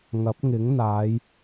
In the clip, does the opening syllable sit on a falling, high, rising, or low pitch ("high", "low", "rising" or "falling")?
rising